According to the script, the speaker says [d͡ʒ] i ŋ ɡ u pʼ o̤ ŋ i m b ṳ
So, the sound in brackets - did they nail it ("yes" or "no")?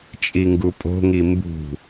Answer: no